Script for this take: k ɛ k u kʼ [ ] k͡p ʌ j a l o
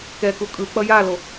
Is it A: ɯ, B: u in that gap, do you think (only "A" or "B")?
A